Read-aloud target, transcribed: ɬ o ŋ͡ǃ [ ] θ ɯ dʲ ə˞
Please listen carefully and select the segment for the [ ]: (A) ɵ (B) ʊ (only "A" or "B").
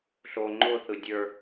B